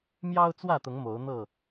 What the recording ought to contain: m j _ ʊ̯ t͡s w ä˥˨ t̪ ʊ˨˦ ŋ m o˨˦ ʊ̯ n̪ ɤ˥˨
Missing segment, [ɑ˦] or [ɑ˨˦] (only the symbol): ɑ˦